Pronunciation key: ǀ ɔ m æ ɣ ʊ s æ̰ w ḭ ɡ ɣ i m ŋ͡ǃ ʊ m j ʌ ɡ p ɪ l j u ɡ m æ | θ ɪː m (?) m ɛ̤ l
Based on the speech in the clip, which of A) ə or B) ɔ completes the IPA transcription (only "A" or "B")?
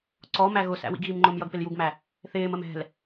A